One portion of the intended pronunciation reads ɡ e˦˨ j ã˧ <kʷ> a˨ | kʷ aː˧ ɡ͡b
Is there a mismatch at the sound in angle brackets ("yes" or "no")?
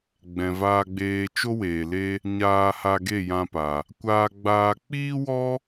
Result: yes